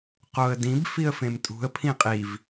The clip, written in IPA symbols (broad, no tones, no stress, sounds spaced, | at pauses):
q o ə̯ d ĩ b f i ə̯ f ẽ m tʼ ṳ ə̯ pʰ ĩ qʼ i v